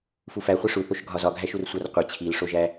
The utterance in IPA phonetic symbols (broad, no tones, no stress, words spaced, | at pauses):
fufæχʷe ʂuθoʃɡʱɒ zɒɡʱæʃur sʷærqʷe t͡ɕʰilʂoʒæ